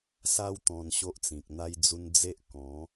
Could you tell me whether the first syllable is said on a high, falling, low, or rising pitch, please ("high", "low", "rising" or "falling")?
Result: high